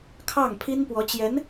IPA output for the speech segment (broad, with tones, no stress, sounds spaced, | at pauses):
kʰ ɑ˥˩ ŋ pʰ i˥ n p w ɔ˧˥ t͡ɕ j ɛ˧˥ n